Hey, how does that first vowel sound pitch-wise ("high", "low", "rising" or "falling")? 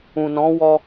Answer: low